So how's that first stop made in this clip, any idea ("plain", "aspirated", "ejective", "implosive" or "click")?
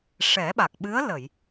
implosive